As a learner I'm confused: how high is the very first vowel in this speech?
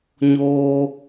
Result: mid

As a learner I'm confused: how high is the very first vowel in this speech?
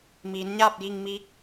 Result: high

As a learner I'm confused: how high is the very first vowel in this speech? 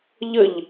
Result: mid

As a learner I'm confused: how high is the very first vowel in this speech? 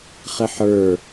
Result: high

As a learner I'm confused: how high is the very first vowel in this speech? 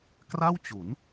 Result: low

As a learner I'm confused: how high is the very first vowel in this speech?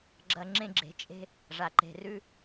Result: low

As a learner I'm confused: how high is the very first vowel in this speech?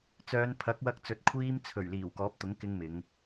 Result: mid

